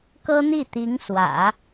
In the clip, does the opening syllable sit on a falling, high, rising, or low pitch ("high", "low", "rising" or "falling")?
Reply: high